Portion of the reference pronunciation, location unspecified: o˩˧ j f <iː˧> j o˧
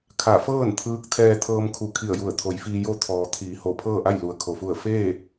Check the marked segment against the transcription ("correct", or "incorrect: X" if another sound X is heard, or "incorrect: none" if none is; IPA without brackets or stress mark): correct